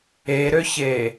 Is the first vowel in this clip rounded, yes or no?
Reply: no